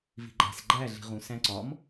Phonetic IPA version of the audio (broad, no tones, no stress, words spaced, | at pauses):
vi̤ɡ͡ǃæ̤s ɡ͡ǃæ ɮi̤ʁũ sæ̃ ǀɒm